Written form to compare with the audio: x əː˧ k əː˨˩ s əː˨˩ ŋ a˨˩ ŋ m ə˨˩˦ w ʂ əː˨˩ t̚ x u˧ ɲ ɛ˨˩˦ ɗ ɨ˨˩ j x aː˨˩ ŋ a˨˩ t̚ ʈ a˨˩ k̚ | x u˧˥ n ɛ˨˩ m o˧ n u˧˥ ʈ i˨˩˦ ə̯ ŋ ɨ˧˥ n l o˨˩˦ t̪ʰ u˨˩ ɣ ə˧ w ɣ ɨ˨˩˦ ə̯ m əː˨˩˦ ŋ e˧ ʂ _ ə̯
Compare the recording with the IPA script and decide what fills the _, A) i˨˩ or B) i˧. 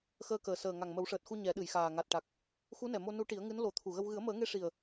A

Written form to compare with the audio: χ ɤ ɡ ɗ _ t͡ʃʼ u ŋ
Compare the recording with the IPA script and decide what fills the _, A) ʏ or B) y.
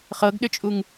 A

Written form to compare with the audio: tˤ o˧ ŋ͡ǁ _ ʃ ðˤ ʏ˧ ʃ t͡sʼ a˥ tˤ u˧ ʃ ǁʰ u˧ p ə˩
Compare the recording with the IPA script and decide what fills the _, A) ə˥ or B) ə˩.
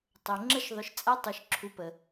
A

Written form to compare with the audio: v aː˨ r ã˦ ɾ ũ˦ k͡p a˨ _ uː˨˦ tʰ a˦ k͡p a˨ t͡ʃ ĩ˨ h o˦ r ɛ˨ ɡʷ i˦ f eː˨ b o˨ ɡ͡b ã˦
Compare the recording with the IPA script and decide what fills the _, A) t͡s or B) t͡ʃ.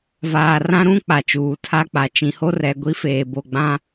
B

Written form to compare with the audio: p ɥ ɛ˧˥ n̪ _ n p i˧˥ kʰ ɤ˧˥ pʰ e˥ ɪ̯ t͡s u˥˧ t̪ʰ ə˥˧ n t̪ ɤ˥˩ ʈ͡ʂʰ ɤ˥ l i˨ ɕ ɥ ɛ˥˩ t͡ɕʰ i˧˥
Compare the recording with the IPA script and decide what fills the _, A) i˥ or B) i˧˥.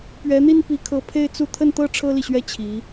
A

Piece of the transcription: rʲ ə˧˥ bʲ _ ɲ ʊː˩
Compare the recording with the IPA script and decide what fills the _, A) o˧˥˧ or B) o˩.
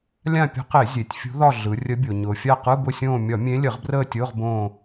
B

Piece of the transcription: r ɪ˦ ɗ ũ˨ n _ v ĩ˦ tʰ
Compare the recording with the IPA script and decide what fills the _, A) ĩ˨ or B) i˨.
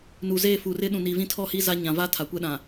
B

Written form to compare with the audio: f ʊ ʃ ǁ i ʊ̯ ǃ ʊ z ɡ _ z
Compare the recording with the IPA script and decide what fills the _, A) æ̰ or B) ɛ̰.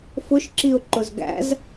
A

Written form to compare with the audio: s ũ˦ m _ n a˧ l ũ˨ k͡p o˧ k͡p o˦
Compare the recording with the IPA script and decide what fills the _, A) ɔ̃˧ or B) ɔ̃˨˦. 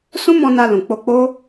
A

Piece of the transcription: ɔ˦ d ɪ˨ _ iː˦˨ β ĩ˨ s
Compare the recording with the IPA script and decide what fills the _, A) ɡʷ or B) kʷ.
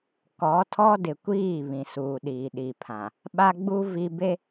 B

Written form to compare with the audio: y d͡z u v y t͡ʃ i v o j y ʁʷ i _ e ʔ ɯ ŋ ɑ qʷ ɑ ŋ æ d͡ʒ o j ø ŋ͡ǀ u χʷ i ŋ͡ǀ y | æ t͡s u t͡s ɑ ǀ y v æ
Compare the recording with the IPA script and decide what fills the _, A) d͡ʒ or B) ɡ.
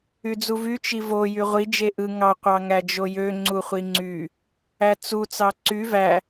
A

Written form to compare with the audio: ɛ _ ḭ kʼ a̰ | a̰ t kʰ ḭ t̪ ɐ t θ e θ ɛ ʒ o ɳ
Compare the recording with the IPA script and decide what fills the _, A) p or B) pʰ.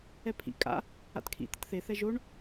B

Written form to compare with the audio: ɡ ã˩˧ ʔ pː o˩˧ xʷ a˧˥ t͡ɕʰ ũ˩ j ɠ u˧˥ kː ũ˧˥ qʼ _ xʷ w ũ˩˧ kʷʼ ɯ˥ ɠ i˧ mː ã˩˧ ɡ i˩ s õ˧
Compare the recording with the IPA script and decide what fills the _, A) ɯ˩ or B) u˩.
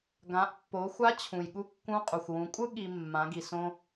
B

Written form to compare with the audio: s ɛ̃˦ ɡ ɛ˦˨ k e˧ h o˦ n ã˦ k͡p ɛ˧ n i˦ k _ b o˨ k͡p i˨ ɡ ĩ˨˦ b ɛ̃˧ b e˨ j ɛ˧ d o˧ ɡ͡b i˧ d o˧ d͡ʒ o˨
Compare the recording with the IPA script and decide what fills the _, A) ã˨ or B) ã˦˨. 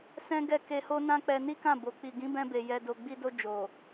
B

